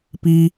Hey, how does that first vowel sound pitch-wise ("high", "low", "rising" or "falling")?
high